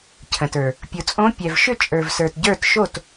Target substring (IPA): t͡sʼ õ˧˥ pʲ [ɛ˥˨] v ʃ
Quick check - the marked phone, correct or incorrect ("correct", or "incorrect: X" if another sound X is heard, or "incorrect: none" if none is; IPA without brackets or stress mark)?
incorrect: ɛ˨